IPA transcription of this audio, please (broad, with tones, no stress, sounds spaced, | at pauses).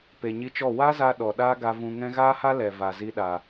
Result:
p e˨ ɲ i˧ t͡ʃ ɔ˦˨ w a˦ z a˧ ɗ ɔ˨ ɗ aː˦ ɡ a˧ v ũ˧ ŋ ɛ̃˦ ɣ aː˦ h a˦ l ɛ˨ v a˨ z i˧ ɗ a˨